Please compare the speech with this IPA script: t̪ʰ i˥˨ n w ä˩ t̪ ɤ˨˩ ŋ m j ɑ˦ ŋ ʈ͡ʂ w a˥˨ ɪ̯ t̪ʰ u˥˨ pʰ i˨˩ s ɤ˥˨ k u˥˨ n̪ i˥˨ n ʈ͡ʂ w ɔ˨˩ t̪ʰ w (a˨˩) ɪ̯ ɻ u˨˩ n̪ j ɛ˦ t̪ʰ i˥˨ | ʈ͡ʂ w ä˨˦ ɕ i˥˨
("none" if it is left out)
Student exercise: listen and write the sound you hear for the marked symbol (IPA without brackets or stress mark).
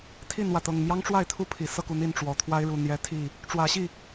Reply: a˦